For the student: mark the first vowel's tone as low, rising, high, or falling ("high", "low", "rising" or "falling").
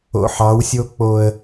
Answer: low